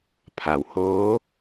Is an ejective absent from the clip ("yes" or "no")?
yes